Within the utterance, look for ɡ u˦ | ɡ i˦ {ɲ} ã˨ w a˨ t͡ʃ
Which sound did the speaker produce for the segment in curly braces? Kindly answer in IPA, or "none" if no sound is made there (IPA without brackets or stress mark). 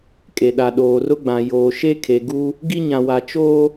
ɲ